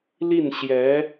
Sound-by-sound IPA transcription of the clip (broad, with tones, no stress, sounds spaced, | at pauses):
l i˥˩ n ɕ j ɛ˧˥